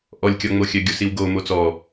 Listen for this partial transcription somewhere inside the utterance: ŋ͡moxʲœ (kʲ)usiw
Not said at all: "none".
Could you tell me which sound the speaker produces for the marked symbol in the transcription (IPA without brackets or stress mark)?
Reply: ɡʲ